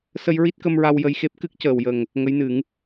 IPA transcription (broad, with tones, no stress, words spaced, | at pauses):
sə˧jɹi˦˥t̚kə˧m ɹa˧wjə˧jxe˦˥p̚ kɨ˦˥k̚cəː˨˩wjə˨˩ŋ | ŋə˧˥jnɨ˨˩˦ŋ